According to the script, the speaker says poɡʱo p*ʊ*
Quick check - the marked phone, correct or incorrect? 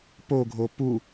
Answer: incorrect